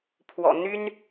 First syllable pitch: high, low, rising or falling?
low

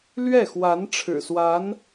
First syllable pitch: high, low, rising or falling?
falling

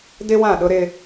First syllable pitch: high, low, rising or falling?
high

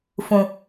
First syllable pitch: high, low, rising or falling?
low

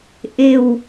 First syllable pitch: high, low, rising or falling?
low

